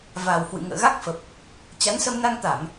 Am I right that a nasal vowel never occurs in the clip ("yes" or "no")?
yes